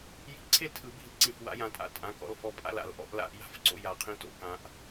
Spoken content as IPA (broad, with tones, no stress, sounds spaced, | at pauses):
j i̤˧˥ ǀʰ e˥˧ l tʰ ɯ˨˩˦ b i̤˧˩ l ǀ ĩ˧˩ f w a̰˧˥ j ã˧ tʼ a̰˧˥ tʼ ã˩˧˩ k ɔ̰˩˧˩ l f ɔ˧˥ pʼ a̰˥˧ l a̰˨˩˦ l ʔ ɔ̰˧˥ ʔ l a̰˥˧ ʔ j a̤˥˧ f ǀ o̰˥˧ j a˧˩ qʰ ĩ˧˥ t o̰˨˩˦ k ã˧ ʔ